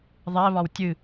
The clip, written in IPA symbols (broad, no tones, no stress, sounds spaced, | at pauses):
ðˤ ɛ β ɒ w tʲ ɨ